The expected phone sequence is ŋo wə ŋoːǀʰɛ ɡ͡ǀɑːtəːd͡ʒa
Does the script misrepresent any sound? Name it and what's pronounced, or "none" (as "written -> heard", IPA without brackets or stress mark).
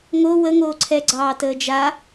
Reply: none